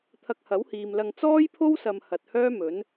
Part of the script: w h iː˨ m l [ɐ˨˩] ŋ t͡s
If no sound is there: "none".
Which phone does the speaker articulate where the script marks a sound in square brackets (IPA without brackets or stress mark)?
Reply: ɐ˧